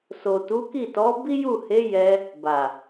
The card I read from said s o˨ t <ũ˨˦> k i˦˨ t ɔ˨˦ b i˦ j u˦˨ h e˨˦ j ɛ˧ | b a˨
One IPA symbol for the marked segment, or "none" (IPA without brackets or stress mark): u˨˦